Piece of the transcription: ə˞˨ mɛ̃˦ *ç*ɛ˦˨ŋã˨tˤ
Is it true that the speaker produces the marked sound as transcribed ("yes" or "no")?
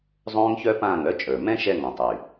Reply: no